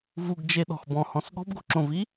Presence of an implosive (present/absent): present